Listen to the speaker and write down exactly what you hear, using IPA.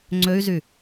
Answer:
ŋ͡ǀ ø y̯ z y

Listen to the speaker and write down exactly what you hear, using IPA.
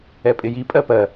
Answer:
ɛ pʼ ɪ j i pʼ ɜ p ɜ

